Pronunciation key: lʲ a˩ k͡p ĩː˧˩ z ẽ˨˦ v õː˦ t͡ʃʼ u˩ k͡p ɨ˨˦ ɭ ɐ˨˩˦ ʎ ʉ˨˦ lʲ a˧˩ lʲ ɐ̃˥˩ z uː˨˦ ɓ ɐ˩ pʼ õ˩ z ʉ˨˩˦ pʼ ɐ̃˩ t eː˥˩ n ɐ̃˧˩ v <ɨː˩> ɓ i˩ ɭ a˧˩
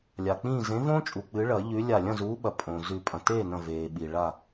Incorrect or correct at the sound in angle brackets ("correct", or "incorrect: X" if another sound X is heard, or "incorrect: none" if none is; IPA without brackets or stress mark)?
incorrect: eː˩